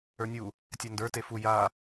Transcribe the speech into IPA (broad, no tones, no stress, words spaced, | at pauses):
ə˞nʲu | tʲandə˞ tefu ja